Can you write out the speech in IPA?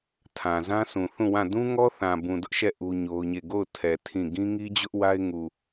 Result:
tʰ ã˨ z ã˦ sʰ ũ˨ θ ũ˦˨ w ã˦˨ d ũ˦ ŋ ɔ˦ θ ã˨ b ũ˨ d ʊ˦ ʔ ʃ ɛ˦˨ ʔ u˦ ɲ o˦ ʊ̯ ɲ e˦˨ ɡ o˦˨ ʊ̯ tʰ ɛ˨ tʰ ĩ˦˨ ɡ ĩ˦ ŋ i˦ d͡ʑ ʊ˦ ʔ w a˦ ɪ̯ ŋ u˨

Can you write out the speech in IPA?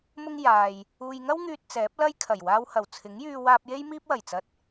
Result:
m ʊ˥ ŋ j aː˨ j | uː˨ j ŋ ɐ˥ w ŋ yː˧ t̚ t͡s ɛː˨˥ p̚ l ɐ˥ j kʰ ɐ˨˩ j w aː˧ w h ɐ˨˩ w t͡sʰ ɪ˨˥ ŋ j yː˧ w aː˧ p̚ j e˥ j m iː˥ p̚ w ɐ˨˩ j t͡s ɐ˧ t̚

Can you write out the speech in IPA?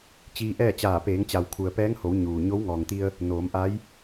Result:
t͡ɕ iː˧ ʔ ɛː˥˨ t͡ɕ aː˧˩ p eː˩˧ ŋ t͡ɕ a˩ w kʰ u˩ ə̯ p ɛː˧˥ ŋ h o˩˧ w ɲ uː˩ ɲ o˧˥ w ŋ ɔː˩ ŋ t̪ i˧ ə̯ | n oː˩˧ m ʔ a˧˥ j

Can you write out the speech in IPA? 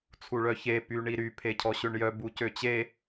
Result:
t͡sʰ u ɭ œ ç e p y ɳ i ɾ y pʰ e cʰ ɔ ɕ ø ɳ j œ b u c ø t͡ɕ e

